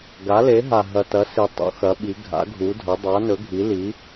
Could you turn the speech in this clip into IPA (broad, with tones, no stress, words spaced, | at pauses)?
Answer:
ɡa˩˥le˩˥ɦa˨˩ ɦɐ˨˩tɐ˩˥ si˨˩ tˤṵ˩˥xɐ˩˥ɓi˩˥ ɡʱa̰˩˥ɡʱu˩˥dʱɐ˩˥ dˤa˩˥nɵ˩˥ ɡʱi˩˥li˩˥